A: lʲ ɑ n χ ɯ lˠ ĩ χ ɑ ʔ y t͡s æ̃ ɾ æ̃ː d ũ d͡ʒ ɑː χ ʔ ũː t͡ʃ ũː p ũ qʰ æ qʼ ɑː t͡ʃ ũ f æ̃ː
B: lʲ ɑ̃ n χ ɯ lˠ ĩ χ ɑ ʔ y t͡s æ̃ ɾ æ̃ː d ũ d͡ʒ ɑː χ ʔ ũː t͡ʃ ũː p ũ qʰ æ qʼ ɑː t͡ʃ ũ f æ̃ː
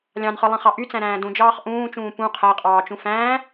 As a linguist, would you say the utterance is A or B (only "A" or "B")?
B